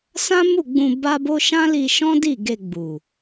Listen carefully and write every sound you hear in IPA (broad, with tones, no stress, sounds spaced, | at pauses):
s ã˦ m u˦˨ ɡ͡b ũ˧ b a˦ b o˦ ʃ ã˦ l i˧ ʃ ɔ̃˦ d i˦˨ ɡ e˧ ɡ͡b u˨